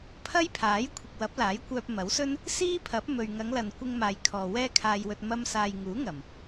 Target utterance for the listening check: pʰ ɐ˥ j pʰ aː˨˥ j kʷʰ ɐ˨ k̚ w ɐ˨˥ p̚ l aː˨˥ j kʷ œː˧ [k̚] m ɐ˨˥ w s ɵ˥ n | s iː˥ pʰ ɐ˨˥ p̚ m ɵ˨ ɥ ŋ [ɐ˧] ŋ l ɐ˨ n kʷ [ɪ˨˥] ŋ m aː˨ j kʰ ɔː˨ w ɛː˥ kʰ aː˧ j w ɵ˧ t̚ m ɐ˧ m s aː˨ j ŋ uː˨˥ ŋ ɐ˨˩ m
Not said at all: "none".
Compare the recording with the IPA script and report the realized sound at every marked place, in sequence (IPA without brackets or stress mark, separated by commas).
p̚, ɐ˨˧, ɪ˧